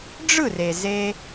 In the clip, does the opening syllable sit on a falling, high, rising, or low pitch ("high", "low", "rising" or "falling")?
falling